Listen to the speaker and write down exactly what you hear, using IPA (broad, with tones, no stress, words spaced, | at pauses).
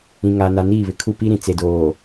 ĩ˨ŋa˨ na˨niː˦˨βɪ˨kʰu˦˨ pi˦ɾĩ˨ t͡se˨doː˨